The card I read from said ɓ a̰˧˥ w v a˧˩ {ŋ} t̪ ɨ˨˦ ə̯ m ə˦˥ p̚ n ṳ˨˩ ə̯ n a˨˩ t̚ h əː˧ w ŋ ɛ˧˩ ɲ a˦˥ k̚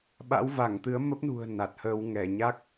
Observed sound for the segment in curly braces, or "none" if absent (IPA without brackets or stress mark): ŋ